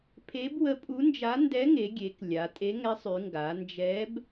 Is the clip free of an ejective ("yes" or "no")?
no